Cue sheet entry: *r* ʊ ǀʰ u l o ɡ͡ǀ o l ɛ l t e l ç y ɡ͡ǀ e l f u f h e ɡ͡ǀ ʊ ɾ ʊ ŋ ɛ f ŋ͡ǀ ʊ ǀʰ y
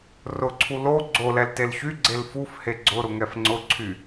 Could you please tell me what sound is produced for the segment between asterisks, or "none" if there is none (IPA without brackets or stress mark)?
r